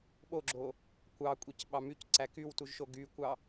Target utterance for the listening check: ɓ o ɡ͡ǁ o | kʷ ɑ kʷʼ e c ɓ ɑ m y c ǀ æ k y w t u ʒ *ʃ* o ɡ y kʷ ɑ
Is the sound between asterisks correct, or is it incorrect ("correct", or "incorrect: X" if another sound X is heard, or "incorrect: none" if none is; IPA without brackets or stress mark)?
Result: correct